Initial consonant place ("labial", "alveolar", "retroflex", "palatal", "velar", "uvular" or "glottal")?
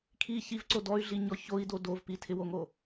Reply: velar